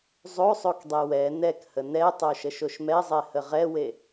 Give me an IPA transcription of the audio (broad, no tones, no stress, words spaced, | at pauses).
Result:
zˤosˤok dˤewɛ nɛk hənɛ tˤoʃəʃoʃmɛ zˤɛhəʁɛwe